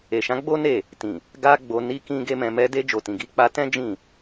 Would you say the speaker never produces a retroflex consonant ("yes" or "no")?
yes